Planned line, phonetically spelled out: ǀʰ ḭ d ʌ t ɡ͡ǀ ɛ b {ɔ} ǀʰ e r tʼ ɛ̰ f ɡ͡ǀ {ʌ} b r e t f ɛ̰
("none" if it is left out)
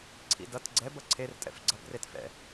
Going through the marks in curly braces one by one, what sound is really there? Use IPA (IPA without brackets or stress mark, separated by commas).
ʌ, ʌ